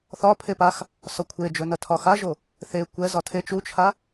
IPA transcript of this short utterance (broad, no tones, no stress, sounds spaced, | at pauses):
θ ɒ pʰ e p a x | s ɒ kʷʰ e d͡ʒ ɵ n ɐ tʰ ɒ x a ʒ o | θ e kʷ ɛ z ɒ tʰ e t͡ʃ u t͡ʃʰ a